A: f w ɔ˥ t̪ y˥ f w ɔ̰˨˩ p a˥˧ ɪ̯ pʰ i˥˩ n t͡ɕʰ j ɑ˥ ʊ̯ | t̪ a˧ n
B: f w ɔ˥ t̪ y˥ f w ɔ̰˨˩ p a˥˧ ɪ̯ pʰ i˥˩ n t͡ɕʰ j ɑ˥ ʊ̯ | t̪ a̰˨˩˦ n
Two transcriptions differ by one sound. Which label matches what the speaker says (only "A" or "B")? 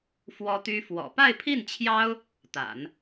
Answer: B